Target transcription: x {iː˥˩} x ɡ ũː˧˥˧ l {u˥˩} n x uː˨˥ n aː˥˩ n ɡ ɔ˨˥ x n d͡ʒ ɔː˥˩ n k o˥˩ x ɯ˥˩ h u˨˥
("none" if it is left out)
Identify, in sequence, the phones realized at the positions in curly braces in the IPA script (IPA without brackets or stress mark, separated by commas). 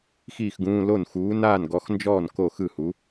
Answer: iː˥˩, o˥˩